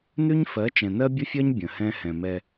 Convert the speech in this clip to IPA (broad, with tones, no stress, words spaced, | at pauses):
nʉ˦ɲfɜ˨˦t͡ʃɛ̃˨ nɜ˦bʲə˦fʲɜ˦ɲ bʲə̃˨ hɛ̃˦hɛ̃˨mɛ˦